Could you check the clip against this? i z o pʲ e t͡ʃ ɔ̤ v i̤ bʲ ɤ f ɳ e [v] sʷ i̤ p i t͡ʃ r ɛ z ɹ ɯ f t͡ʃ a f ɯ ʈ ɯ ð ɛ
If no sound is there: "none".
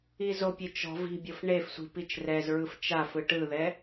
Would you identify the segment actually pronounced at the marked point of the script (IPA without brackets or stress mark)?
f